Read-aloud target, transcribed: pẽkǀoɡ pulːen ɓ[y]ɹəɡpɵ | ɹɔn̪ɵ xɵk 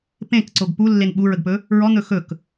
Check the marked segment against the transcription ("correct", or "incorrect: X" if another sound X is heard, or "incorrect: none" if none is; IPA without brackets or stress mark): incorrect: u